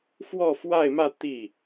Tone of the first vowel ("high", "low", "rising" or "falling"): falling